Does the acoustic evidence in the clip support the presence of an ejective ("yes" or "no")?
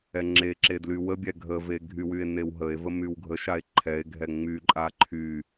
yes